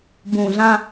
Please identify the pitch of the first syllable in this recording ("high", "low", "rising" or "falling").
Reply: low